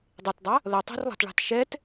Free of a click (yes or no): yes